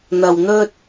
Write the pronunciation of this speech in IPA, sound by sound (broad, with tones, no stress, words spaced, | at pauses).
n̪ɐ˧wn̪ɵ˥t̚